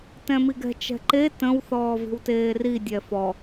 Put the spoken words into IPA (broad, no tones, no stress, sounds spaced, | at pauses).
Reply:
t ɛ̃ m i ɡ ɛ̤ t͡ʃ ɛ̤ ǃ e t ə̃ w θ ɔː v i̤ w t eː r i dʲ ɛ f ɔ